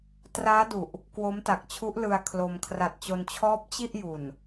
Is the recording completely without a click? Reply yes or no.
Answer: yes